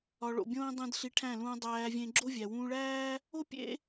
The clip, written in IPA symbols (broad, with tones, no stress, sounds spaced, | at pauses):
ɒ˧ ɭ o̰˦˨ bʲ õː˦ dˤ ẽ˦ d ɬ i˧ ʈʰ æ̃˦˨ l ũː˧ dˤ æː˧ vʲ ẽ˧ ɡ͡ǁ o˦ vʲ æ˨ w ũː˧ ɭ æː˦ | o˦ pʲ ḛ˦